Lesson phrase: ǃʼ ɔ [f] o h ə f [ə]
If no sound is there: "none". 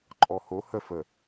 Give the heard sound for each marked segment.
h, ə

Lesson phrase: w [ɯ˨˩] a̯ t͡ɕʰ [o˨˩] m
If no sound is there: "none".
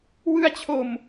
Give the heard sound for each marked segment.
ɯ˧, o˨˩

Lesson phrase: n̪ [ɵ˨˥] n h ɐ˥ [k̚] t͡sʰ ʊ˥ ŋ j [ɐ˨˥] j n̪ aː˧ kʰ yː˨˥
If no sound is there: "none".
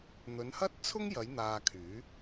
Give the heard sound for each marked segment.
ɵ˨˧, t̚, ɐ˨˧

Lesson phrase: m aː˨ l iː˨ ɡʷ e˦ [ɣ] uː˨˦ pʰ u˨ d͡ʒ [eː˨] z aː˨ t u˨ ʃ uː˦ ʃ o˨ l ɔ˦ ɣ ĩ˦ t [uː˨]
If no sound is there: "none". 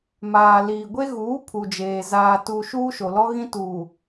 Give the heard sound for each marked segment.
ɣ, eː˨, uː˨

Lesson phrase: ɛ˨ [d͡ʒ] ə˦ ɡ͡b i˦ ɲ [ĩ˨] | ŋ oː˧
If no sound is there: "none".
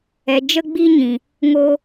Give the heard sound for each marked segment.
d͡ʒ, ĩ˨

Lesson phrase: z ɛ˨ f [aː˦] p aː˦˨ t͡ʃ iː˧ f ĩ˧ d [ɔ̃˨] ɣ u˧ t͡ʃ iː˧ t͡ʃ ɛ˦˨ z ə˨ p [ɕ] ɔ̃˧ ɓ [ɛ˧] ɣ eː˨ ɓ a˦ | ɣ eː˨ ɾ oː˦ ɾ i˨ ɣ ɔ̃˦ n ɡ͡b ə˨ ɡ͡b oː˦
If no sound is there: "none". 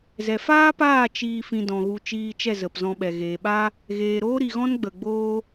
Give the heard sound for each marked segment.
aː˦, ɔ̃˨, z, ɛ˨

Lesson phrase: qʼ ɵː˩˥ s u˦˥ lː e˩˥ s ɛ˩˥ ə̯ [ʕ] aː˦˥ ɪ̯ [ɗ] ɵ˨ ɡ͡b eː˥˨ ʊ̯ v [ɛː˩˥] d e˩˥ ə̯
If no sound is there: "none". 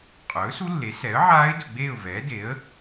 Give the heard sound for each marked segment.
ʕ, d, ɛː˩˥

